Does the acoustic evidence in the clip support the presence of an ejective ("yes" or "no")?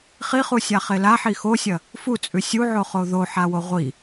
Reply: yes